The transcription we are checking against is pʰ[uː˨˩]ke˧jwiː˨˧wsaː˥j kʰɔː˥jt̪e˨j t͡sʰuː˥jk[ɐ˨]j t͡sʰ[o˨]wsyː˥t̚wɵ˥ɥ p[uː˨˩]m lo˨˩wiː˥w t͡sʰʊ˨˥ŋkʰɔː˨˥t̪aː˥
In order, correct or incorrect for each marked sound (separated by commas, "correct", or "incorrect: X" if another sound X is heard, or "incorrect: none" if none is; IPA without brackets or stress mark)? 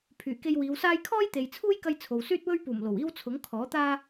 incorrect: yː˨˩, incorrect: ɐ˧, correct, correct